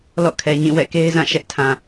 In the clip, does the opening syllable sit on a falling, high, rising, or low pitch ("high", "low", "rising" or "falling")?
falling